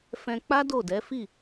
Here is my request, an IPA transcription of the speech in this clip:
f ɛ̃˧ k͡p a˦ d o˦˨ d ɛ˨˦ f i˦˨

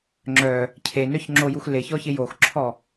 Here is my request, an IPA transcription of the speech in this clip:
ŋ͡ǁ œ | cʰ e n œ ç ŋ͡ǁ o j u x l ɪ ç ɔ ç ɪ j o x ǁʰ ɔ

